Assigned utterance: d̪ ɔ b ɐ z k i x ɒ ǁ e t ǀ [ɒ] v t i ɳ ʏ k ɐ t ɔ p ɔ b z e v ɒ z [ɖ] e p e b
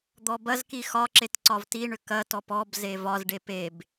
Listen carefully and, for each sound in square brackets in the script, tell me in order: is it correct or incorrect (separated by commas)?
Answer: correct, correct